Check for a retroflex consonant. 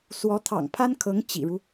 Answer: present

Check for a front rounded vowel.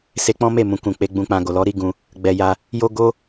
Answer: absent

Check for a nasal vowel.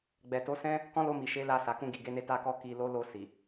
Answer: present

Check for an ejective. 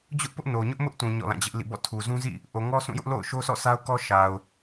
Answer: absent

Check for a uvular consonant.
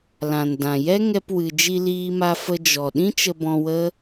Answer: absent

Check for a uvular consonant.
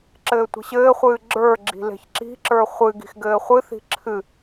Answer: present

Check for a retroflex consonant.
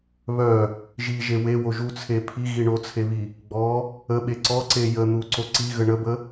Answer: present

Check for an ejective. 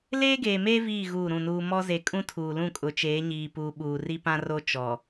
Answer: present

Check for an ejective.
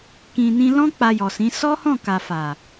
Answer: absent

